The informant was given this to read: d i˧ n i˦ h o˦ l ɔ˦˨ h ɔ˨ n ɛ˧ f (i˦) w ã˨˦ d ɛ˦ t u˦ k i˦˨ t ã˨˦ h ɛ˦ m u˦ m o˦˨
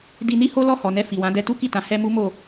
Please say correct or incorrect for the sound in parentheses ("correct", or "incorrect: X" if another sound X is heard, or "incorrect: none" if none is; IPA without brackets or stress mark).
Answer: incorrect: i˨